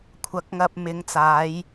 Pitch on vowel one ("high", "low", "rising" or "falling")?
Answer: rising